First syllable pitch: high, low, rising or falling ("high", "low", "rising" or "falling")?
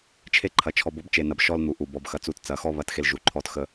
high